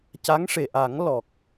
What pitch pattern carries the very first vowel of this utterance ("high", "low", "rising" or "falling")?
rising